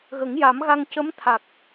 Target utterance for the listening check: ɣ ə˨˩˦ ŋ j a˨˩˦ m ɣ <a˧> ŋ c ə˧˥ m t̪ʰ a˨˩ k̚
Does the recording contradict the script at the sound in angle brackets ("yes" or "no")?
no